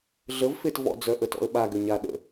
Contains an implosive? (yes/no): yes